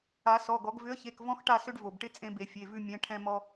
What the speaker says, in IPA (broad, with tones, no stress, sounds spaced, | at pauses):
a˨˩˦ s ɔ˩˧˩ ɡ ɔ˨˩˦ ɡ v ʏ˨˥ ə̯ ç e˩˧˩ k v ɔ̃˦ x ʈ a˦˨ s ʏ˦ ɖ v o˩ b ʈ ɪ˦ t͡sʼ ẽ˦ b e˨˩˦ fʲ e˩˧˩ v ʉ˦˨ mʲ ɛ̃˨˥ ʈʰ ɛ̃˦ m ɔ˦